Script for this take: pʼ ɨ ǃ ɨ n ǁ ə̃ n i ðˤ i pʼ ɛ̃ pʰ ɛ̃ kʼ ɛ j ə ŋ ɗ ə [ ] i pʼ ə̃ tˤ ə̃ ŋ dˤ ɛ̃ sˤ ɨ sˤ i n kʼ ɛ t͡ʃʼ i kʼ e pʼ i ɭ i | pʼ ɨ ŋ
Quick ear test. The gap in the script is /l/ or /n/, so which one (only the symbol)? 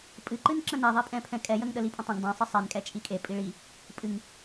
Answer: l